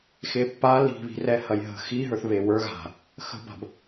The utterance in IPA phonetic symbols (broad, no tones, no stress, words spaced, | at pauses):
xepːal i̤βi̤rɛhɐj ɦə̤ xi ɦə˞θβewə˞ ɣa̤ | xə̤ba̤b